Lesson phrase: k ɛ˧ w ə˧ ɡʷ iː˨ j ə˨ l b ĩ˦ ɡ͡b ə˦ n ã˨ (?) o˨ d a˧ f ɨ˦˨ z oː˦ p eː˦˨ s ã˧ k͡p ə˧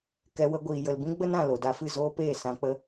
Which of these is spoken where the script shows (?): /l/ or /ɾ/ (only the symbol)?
l